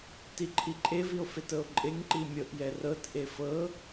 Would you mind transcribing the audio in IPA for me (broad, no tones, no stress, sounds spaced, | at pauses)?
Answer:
t i ǃʰ i ǃʼ e v i o̯ f e t ɤ o̯ ǃʼ e ŋ ǃ i mʲ ɤ ʔ j ɛ r ɤ t ʔ e f ɤ